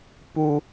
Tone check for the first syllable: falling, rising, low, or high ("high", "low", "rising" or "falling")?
high